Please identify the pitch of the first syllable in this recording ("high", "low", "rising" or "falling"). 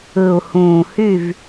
low